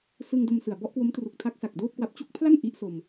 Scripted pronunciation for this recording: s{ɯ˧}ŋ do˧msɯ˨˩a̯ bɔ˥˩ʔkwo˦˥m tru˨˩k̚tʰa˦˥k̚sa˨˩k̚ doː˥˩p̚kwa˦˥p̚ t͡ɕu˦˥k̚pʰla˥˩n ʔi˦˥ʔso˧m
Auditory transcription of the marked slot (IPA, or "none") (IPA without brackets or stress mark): ɯ˧